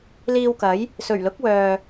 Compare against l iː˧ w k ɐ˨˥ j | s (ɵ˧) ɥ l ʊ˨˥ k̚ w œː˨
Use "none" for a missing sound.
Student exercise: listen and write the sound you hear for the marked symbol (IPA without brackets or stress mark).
ɵ˨˩